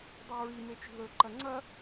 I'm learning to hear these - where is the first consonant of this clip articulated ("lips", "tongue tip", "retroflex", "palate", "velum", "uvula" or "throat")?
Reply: tongue tip